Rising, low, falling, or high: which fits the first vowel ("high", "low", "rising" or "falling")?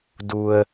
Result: low